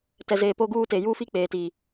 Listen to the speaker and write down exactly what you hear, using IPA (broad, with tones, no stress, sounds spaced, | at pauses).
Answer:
t ɛ˨ z eː˨ p o˦ ɡ uː˦ t e˨ j uː˦ f i˦ k͡p eː˨ t i˨